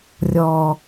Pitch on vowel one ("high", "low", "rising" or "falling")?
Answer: low